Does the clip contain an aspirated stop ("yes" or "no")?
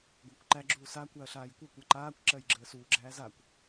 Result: no